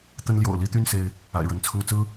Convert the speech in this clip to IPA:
t̪ ə˦ n l j o̰˨˩ ʊ̯ l i˥˨ t̪ y˥˨ n s e˦ ɪ̯ | a̰˨˩ ɪ̯ ɻ ə˨˦ n t͡sʰ ʊ˦ ŋ t͡s ɹ̩˦

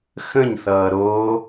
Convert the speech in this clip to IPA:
x ə̃ ɲ θ ʌː ɾ o

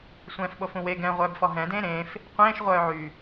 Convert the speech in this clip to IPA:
sʷ ɛ̃ː f ɓ o f ũ w e ɡ ɛ̃ ʁʷ œː b f ɔ ɦ ɛ̃ d ẽː ɾ ẽː f | qʷ ẽː ʃ ʁʷ œː ʕ y

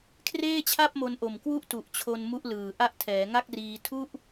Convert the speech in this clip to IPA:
kʰ r eː˥˩ t͡ɕʰ a˥˩ p̚ m o˧ n ʔ o˨˩ m k w u˥˩ ʔ t u˨˩ ʔ t͡ɕʰ o˧ n m u˦˥ ʔ l ɯː˨˩ ʔ a˦˥ ʔ tʰ ɛː˩˦ ŋ a˥˩ k̚ r iː˧ tʰ u˥˩ ʔ

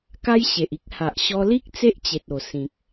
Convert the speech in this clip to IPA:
k a˦ j ɕ e˨ ʔ i˦ k̚ h a˨ ʔ ɕ ɔ˧ l i˦ k̚ t͡s e˦ ʔ t͡ɕ e˨ t̚ o˨˩ s ĩ˨ k̚

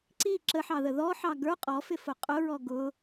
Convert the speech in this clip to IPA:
ǀ i ǁ ə ħ ɑ ð ə ð ɔ ħ ɑ ɡ ə˞ qʼ ɔ f ɪ f ʊ qʼ ʊ ɹ ɔ ɡ ʊ

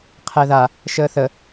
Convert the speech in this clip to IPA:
qʰ ɛ ð a | ʃ əː θ ə

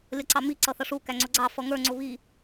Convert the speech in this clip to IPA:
lʲ ʌ ǀ ɑ m i ǀ ʌ θ ʌ ʂ u k æ ŋ͡ǀ ʊ ɡ͡ǀ ɑ f ʌ ŋ ə˞ ŋ͡ǀ ʊ β i

